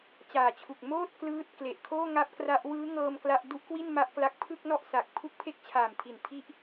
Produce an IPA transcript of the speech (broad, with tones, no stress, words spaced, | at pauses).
t͡ɕaː˨˩t͡ɕʰu˨˩k̚ moː˥˩t̚ klɯː˥˩t̚ kle˨˩ʔkʰoː˥˩ŋa˦˥p̚kra˦˥ʔ wɯː˦˥ŋɤː˧m kla˥˩ʔ du˥˩ʔkwi˥˩n ma˥˩ʔkla˦˥k̚ pʰɯ˥˩k̚nɔ˥˩ʔsa˨˩k̚ pʰu˥˩k̚pʰe˥˩k̚t͡ɕʰaː˨˩mtʰi˨˩n tʰi˦˥ʔ